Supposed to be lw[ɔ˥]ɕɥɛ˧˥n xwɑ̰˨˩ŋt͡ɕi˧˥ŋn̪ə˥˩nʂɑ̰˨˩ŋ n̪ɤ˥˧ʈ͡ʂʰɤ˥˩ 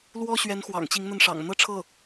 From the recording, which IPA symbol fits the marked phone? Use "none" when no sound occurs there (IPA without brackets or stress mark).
ɔ˥